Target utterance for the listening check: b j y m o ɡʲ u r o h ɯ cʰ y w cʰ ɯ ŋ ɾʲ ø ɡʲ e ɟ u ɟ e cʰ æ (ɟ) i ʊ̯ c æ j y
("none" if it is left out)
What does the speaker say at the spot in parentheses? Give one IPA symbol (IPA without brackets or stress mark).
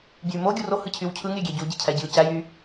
ɟ